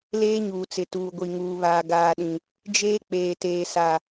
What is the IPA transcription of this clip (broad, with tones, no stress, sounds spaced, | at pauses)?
l eː˦ ɲ uː˨ t͡s ɪ˨ t uː˨ ɡʷ i˨ ŋ uː˨ β aː˨ ɡ aː˨ ɗ ĩ˨ | d͡ʒ eː˦ k͡p eː˨ t eː˨ s a˨